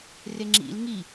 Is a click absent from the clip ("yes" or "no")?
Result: no